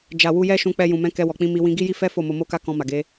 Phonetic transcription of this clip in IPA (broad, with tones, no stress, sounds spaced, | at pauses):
d͡ʒ a˨ w u˧ j ɛ˦ ʃ ũ˧ k͡p ɛ˧ j ũ˨ m ɛ̃˧ k ɛ˧ w ɔ˨ k͡p ĩ˧ m i˧ w ĩ˧ ɡ i˦ j i˦ f ɛ˦ f o˦˨ m o˧ m o˦ k a˦ k ɔ̃˧ m a˨ ɡ e˨˦